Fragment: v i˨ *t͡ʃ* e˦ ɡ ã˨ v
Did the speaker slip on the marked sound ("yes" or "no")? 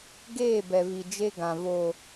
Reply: yes